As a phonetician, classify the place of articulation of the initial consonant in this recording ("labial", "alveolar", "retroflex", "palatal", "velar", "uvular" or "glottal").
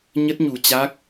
palatal